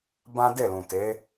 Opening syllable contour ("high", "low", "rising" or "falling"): high